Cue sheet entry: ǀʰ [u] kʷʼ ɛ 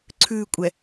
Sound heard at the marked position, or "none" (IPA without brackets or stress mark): ʉ